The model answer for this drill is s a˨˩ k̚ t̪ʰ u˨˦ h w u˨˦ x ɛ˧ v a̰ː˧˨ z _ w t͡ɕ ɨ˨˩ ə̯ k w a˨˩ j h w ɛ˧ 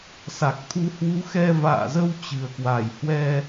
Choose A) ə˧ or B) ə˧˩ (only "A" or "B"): A